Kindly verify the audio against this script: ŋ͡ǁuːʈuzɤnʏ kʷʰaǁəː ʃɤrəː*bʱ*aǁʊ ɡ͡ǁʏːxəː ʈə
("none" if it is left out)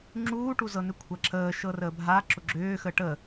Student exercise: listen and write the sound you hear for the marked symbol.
bʱ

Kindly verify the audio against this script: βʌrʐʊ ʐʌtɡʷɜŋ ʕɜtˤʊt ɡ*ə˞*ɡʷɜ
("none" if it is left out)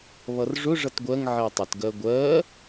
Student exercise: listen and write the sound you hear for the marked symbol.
ɜ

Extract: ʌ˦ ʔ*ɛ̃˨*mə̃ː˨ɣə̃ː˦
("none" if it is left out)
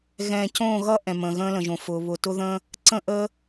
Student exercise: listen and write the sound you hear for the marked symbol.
ɛ̃˨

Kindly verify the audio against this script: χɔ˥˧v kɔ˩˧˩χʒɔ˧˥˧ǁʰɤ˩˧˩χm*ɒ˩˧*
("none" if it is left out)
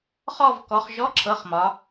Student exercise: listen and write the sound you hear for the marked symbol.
ɒ˩˧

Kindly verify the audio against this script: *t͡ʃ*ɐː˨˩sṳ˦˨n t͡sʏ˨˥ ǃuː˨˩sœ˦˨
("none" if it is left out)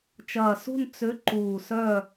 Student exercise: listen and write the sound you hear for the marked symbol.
t͡ʃ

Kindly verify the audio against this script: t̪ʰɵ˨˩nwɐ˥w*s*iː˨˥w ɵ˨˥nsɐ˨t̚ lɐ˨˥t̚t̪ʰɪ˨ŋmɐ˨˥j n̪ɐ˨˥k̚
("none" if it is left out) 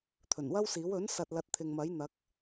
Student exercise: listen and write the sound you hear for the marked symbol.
s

